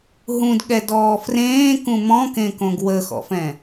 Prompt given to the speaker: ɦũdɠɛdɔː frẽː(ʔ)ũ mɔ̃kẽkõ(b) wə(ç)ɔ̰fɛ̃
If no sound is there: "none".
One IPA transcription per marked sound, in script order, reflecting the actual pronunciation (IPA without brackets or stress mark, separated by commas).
k, ɡ, x